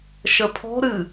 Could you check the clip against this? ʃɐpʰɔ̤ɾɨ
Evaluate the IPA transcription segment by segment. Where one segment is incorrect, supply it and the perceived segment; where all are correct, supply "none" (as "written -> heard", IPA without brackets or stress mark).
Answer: ɐ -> ə